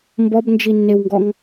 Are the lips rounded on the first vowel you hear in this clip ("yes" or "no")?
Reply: yes